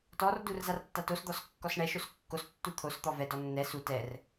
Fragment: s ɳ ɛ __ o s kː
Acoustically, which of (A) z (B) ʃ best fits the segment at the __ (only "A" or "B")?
B